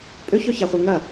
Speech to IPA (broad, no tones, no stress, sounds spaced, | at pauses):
pʼ ø ç œ ç a χʷ ɛ ŋ ɐ